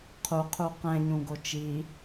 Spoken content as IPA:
qʰ u qʰ u q ɛ̃ ɲ ũ ɡ o t͡ʃ i

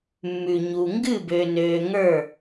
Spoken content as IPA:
mː ʉ˨ ɲ u˨ ŋ ɡ ɨ˥˨ b ø˨ n øː˨ ŋ ə˞˥˨

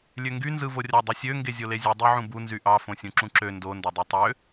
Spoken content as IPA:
lʲ ø ŋ ɡ y n z ɯ v o rʲ ɑ dˤ ɯ sʲ ø ŋ ɡ e zʲ o l e zʲ ɯ dˤ ø ʕ ũ b u n z y ʔ ɑ f õ sʲ ũ ǁ ũ ǁ ø n d o n d ɑ dˤ ø tˤ ø

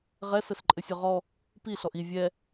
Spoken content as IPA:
ʁ ɛ s ɘ s ǃʼ ɘ sʲ ɔ ʁ ɔ | p i ɬ ɔ ʔ i vʲ ɛ

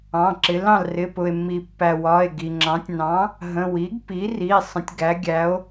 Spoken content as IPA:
ɑ̃˩˧˩ ǁ ɪ˩˥ l ɑ̃˩ l r ɪ˩˧˩ p ʊ˩ e̯ mː i˩ pː æ˩ w ɒ˩˧˩ e̯ ɡ i˩ ŋ͡ǁ ɑ̃˩˥ tʲ n ɑ̃˩˥ | ɦ ə̃˩˧˩ w i˩˥ ɡ p i˩˥ r i˩˧˩ sˤ ə̃˩˥ tʲ ɡ æ˩˥ ɡʲ æ˩˥ o̯

